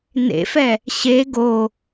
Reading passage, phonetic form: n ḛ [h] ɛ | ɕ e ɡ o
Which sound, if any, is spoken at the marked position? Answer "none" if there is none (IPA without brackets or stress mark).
f